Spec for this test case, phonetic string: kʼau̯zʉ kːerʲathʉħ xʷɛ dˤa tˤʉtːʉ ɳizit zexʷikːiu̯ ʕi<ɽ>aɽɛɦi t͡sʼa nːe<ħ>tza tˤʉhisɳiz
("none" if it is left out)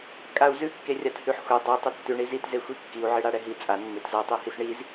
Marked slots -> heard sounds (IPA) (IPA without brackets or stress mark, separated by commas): ɽ, none